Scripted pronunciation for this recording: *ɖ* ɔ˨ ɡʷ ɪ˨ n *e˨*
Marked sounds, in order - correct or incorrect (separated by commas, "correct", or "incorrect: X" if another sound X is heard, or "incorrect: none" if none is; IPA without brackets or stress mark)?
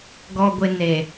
incorrect: ɡ, correct